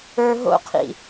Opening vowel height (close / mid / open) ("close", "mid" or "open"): mid